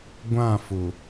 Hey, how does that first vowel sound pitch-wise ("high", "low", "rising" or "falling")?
falling